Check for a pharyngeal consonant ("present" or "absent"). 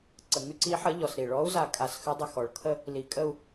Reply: present